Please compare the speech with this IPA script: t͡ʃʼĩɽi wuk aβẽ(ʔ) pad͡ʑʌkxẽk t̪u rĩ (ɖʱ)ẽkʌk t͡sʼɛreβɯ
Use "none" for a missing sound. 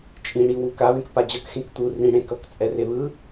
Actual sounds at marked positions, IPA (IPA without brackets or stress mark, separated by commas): k, ɽ